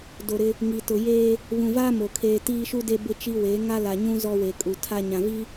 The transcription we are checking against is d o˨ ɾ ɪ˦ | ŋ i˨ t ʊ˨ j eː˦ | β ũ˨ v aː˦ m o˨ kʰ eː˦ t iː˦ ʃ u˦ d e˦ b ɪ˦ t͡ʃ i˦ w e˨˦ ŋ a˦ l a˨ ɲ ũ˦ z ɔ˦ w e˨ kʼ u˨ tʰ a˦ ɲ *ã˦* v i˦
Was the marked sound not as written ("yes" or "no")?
yes